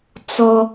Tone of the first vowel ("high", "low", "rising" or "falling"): high